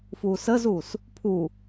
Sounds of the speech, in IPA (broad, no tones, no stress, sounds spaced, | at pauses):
f uː s əː z uː s | pʰ u